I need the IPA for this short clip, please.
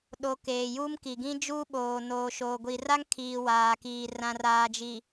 ɗ o˨ k eː˨ j u˦ m k i˨ ɡ ĩ˦ d͡ʒ uː˦ ɓ oː˨ n oː˨ ʃ oː˨ ɡʷ i˨ r a˦ ŋ kʰ iː˨ w aː˨ k iː˨ r ã˨ r aː˨ d͡ʒ i˨

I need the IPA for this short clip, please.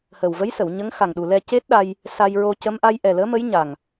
h əː˨˩ w v ə˧˥ j s ə˨˩˨ w ɲ ə˧˥ ŋ x a˨˩ ŋ ɗ u˨˩ l ɛ˧ c e˦˥ t̚ ɗ a˧ j | s a˧ j ɹ o˧ c ə˧˥ m ʔ a˧˥ j ʔ ɛ˨˩ l əː˧˥ m ə˧˥ j ɲ a˨˩ ŋ

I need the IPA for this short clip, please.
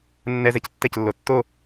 nː ɛ z ɛ c tː ɛ c lː o tː o

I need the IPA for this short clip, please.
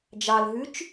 d͡ʒ ɑ l ɦ ʉ t͡ʃ

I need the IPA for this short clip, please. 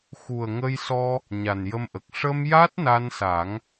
x u˨˩ ə̯ ŋ ə˧ j s ɔ˧ | ɲ a˨˩ n j ə˧ m ʔ ə˨˩ k̚ ʂ ə˧ m j a˦˥ t̚ n a˧ n s a˨˩˦ ŋ

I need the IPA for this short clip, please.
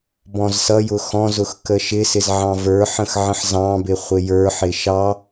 b ɔ̃ z s ʌ j ʊ x ɔ̃ z ʊ x k ə ʃ ɪ s ɪ z ʕ ɑ̃ v ə˞ ħ ə̃ x ʕ ə̃ ħ z ɑ̃ b ɪ χʷ ɪ j ə˞ ħ ɪ ʃ ɑ

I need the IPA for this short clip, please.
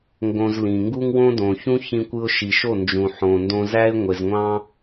ŋ ɡ õ˧ z l ĩ˨ ŋ ɡ u˦ ŋ w õ˦ d õ˨ ç ũ˦ ç ĩ˦ kʷ ɯ˦ ʊ̯ ʃ i˨ ʃ o˦˨ n d͡ʒ ũ˨ ħ õ˨ n d õ˧ z æ˦ ɪ̯ ŋʷ e˨ z ŋʷ ɑ̃˦

